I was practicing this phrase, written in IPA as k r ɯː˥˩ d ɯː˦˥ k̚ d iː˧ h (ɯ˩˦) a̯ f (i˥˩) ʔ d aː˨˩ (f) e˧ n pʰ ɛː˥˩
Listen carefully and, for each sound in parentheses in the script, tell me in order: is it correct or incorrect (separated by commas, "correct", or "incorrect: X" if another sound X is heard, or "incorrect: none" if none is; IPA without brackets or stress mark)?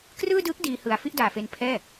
correct, correct, correct